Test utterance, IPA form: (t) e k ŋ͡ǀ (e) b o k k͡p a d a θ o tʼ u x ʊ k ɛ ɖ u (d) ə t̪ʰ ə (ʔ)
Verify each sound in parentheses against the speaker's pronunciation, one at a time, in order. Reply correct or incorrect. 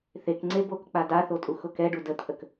incorrect: θ, correct, correct, incorrect: k

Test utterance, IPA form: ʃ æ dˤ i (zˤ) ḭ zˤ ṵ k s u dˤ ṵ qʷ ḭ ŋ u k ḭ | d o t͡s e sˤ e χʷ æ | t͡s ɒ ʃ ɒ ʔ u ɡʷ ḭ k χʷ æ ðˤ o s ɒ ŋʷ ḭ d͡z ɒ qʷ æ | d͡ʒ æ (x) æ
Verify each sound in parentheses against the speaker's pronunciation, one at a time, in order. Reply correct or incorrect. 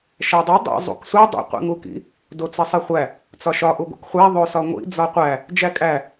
incorrect: dˤ, incorrect: kʼ

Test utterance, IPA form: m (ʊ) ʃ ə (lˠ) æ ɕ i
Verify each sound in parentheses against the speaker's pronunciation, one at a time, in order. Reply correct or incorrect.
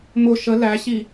correct, incorrect: l

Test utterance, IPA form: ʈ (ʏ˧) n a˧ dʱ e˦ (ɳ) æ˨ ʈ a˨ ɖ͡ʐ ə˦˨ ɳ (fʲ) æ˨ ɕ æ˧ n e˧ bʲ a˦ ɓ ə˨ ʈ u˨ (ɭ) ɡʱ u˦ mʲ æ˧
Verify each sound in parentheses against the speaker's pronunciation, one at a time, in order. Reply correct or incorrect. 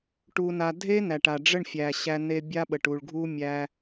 incorrect: u˧, incorrect: n, correct, correct

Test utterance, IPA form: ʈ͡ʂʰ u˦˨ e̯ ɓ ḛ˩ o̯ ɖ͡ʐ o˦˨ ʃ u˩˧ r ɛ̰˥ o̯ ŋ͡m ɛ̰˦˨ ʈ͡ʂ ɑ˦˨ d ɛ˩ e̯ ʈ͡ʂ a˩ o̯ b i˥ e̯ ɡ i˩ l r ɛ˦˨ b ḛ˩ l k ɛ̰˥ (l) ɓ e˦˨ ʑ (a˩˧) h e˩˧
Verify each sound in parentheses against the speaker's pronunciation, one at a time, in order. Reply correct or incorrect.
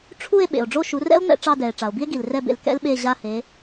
correct, incorrect: a˦˨

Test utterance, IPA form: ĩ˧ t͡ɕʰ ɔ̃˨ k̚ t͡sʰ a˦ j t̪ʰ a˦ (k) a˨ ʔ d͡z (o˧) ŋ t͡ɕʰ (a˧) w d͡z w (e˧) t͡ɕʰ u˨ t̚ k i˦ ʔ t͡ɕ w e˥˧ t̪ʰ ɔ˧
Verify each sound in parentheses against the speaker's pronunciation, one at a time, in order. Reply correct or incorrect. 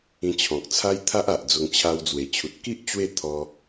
incorrect: ʔ, correct, correct, incorrect: e˨˩

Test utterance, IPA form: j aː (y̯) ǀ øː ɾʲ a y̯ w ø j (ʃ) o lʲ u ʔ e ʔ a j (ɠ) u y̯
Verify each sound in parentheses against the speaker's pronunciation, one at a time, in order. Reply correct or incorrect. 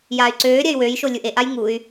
correct, correct, incorrect: ŋ

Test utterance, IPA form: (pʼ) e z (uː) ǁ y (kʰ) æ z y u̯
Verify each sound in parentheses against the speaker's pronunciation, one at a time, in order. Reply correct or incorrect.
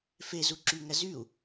incorrect: f, incorrect: u, incorrect: ŋ

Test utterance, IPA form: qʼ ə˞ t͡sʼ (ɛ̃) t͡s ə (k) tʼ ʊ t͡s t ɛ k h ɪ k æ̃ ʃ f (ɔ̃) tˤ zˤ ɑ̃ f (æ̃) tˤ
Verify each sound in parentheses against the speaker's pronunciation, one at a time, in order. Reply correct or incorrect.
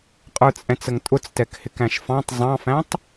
correct, incorrect: ŋ, incorrect: ɑ̃, correct

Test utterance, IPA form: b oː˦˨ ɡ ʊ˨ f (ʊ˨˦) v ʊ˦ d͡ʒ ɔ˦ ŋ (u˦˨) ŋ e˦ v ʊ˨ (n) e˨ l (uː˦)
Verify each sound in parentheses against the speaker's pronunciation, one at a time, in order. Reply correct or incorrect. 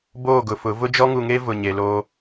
correct, incorrect: u˨, incorrect: ɲ, incorrect: oː˦

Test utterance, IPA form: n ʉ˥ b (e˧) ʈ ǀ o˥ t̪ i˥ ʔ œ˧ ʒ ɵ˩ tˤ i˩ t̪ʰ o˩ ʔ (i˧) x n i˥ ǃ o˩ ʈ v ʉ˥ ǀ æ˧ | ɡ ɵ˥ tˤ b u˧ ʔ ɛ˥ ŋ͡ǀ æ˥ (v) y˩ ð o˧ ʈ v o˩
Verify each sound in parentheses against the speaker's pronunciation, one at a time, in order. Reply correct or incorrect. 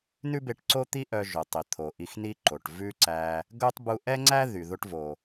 correct, correct, incorrect: ð

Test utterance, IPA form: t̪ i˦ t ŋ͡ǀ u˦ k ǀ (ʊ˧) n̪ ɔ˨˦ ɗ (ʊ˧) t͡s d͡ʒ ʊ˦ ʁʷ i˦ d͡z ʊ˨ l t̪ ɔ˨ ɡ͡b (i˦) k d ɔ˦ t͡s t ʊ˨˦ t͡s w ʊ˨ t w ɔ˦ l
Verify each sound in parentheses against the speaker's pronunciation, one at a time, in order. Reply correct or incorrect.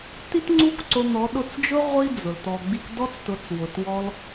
correct, correct, incorrect: i˧

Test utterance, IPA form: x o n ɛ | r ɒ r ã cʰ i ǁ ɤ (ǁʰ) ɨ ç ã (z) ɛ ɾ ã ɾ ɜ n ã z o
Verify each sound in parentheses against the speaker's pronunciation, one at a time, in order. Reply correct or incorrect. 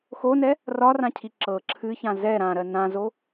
correct, correct

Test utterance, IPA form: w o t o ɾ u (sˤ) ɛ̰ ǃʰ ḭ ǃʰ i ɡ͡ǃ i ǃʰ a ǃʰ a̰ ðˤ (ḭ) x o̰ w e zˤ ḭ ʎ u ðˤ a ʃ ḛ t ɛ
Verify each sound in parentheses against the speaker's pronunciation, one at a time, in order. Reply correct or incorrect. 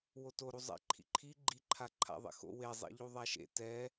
incorrect: zˤ, incorrect: ḛ

